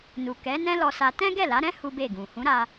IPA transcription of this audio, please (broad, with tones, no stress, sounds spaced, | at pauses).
n u˨ k ɛ˨˦ n ɛ̃˦ l ɔ˧ s a˧ t ɛ̃˦ ɡ ɛ˦˨ l a˨˦ ɾ ɛ̃˦ h u˦ b e˦˨ ɡ ũ˨ h ũ˨˦ ɾ a˧